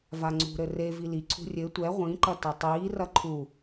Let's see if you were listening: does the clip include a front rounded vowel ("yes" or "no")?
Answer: no